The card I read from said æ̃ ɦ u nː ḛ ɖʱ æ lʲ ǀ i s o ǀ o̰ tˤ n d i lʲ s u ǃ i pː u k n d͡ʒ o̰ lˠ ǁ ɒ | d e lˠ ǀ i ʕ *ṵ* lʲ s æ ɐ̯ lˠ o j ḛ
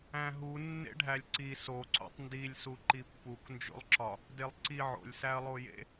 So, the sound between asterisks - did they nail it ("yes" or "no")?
no